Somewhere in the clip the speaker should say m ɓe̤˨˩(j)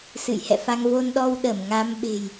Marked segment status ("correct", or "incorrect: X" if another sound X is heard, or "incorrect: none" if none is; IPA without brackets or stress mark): correct